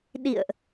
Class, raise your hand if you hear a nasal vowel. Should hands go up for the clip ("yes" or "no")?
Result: no